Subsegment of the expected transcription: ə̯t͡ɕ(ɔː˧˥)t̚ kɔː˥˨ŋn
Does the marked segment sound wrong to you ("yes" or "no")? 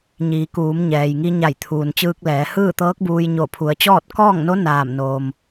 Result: yes